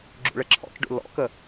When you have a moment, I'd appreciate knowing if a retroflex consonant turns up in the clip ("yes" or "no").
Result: yes